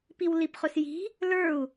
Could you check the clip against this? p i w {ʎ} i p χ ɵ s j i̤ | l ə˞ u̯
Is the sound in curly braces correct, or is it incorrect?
incorrect